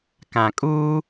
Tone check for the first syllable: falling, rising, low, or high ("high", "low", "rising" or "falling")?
low